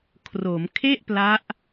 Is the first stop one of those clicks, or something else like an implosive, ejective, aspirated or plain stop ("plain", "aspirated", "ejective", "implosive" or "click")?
aspirated